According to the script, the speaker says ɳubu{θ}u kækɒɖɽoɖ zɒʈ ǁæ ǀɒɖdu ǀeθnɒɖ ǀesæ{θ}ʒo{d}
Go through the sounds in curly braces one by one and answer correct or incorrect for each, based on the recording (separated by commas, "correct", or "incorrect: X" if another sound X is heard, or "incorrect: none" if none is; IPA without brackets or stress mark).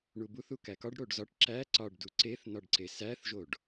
correct, correct, incorrect: ɖ